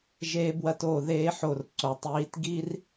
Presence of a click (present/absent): present